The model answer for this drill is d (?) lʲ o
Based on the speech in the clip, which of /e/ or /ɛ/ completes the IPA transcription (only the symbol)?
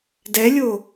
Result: ɛ